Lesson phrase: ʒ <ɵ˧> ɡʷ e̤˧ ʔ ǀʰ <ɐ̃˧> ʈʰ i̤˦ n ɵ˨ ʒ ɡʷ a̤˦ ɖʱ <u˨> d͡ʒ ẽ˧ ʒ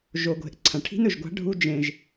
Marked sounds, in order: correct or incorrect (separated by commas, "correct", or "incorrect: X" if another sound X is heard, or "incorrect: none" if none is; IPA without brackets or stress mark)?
incorrect: o˧, incorrect: ɐ̃˨, incorrect: u˦